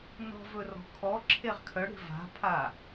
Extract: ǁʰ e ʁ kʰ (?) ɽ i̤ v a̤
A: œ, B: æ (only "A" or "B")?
A